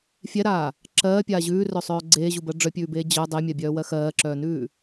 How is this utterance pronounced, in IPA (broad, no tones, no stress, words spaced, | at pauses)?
fʲɛɾaː | ǁɜːpʲaː ʑʉːrœsˤœː ɡ͡ǀeːʑubɜ ɖ͡ʐœpʲʉːbeː d͡ʑœ dˤemʲabʲœːwɜ xɜːǁœːnʉː